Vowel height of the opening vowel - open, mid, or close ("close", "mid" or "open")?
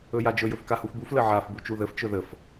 mid